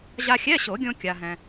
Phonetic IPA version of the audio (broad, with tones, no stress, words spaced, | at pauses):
ʑa˧xʲɛ˧˥˧ɕo˨˩˦ɡʲõ˧ kʲa˧ɦɛ̃˧